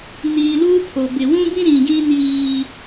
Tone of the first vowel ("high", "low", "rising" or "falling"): low